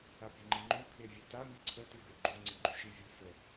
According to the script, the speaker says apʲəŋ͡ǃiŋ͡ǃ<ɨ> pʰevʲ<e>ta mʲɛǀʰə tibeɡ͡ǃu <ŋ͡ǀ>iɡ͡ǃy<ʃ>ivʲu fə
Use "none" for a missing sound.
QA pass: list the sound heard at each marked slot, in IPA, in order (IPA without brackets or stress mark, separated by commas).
y, e, ŋ͡ǀ, ʃ